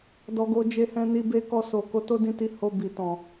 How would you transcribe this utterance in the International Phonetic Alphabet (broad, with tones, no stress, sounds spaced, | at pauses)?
d ɔ˨ ɡ o˨ d͡ʒ e˧ h ɛ̃˧ n i˧ b e˧ k ɔ˧ s o˨ k o˨˦ t o˦ d ĩ˦˨ t i˧ h o˧ b i˨ t ɔ̃˨